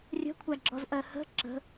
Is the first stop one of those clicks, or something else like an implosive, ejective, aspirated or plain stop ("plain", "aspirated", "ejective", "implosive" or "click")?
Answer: aspirated